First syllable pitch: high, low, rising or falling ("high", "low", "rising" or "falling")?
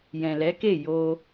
low